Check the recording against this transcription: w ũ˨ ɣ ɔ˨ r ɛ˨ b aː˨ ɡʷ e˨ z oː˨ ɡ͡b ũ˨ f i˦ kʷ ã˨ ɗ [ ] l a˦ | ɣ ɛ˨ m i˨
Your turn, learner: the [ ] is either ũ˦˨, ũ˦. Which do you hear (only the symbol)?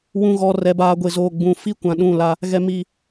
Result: ũ˦˨